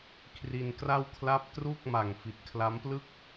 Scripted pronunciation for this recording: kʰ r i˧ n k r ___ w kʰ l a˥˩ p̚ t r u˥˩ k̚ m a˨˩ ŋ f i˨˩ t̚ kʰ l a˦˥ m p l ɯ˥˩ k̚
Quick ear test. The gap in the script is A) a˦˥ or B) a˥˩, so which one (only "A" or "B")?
B